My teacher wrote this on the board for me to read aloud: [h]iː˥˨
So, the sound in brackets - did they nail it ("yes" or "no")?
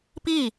no